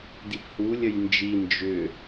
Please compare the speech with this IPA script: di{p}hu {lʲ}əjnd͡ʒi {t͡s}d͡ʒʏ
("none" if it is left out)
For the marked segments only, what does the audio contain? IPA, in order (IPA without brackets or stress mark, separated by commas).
p, lʲ, n